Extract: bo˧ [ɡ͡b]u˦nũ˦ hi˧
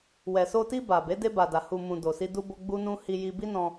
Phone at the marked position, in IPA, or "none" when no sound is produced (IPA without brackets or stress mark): ɡ͡b